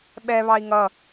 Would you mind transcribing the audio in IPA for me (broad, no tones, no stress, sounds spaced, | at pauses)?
ɓ ɛ β ɑ i̯ ŋ ʌ